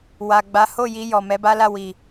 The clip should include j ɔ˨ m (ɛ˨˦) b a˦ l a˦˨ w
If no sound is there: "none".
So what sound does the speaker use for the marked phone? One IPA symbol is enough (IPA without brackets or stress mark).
ɛ˨˦